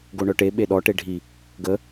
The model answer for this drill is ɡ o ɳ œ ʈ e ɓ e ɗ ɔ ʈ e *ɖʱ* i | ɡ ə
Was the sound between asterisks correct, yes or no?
yes